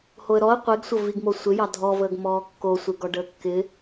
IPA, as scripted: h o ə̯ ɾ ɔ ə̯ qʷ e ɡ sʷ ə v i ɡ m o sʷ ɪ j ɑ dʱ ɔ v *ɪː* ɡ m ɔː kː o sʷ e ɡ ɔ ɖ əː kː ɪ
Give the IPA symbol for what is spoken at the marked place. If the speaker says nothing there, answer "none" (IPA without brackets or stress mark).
əː